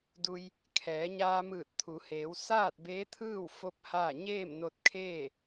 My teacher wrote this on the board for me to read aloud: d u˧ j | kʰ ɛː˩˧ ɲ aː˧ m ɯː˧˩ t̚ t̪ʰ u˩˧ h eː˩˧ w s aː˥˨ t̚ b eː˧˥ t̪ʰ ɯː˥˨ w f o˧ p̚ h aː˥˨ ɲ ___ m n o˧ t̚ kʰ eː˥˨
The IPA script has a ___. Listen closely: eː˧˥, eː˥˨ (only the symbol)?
eː˥˨